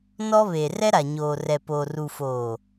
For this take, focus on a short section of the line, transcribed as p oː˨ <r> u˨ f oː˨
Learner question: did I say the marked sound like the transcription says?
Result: yes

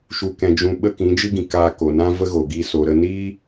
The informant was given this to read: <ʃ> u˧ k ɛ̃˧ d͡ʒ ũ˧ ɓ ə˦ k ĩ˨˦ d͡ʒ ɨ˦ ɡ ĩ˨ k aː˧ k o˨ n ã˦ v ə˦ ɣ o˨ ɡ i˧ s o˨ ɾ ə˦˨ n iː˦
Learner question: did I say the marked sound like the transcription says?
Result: yes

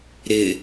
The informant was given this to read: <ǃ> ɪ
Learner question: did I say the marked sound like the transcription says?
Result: no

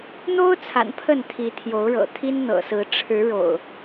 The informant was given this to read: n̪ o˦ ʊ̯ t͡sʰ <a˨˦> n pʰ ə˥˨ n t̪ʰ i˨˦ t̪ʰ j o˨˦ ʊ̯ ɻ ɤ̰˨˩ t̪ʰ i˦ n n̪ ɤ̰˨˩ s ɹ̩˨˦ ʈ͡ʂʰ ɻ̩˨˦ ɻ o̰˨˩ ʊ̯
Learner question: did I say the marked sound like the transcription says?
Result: no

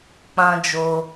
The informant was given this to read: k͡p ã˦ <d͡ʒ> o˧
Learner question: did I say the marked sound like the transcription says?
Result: yes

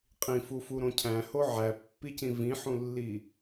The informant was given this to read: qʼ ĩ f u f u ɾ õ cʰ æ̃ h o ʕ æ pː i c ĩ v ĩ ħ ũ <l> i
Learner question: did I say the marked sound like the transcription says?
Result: no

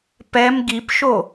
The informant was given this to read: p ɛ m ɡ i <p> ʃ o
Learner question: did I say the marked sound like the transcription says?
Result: yes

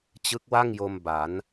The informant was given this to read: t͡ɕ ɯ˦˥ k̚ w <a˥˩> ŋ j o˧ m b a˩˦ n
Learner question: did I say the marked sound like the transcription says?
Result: yes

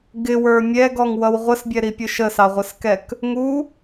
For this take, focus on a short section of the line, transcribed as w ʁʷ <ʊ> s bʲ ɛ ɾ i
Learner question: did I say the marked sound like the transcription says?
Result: no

